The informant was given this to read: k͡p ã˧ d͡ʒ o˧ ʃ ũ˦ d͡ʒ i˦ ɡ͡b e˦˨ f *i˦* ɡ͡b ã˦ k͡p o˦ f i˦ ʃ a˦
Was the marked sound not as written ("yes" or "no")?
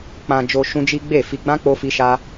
yes